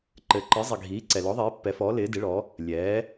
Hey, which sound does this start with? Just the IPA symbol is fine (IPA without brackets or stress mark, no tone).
ǃ